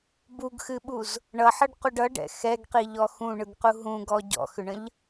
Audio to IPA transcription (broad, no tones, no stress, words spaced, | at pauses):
buɡxɨɓuz | ɳʌħʌɖquɖ ʌɖɛ̰ xɛɡqiʎɔ xũɳɯɡqu ɦũɡɔ ɟɔ̰xʏɳə̃ʎ